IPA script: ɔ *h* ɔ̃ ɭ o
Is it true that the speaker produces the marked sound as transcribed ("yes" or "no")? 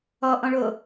no